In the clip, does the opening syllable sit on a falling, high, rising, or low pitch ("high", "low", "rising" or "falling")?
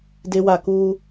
high